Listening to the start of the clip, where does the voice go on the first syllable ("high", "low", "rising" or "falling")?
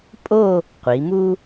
falling